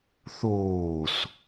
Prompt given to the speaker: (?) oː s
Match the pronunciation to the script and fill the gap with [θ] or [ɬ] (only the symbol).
θ